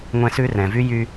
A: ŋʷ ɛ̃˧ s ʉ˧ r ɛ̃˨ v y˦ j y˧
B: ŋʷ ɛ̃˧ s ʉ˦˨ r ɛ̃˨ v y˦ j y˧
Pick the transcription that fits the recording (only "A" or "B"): A